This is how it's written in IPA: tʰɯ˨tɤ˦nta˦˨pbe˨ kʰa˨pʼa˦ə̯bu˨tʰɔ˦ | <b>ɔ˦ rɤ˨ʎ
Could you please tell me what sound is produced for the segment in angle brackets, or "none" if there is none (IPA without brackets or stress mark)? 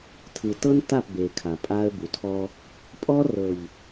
pʼ